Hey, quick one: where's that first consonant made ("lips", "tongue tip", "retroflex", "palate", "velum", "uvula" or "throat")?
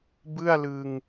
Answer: lips